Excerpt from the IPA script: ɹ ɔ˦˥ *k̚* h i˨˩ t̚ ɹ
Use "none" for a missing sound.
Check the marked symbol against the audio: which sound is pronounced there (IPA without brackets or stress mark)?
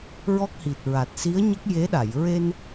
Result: k̚